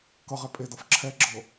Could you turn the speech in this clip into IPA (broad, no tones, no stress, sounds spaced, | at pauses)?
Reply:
k ʌ ʁ ɛ pʼ e d ʌ f ǁʰ ɛ ɡ͡ǁ ɤ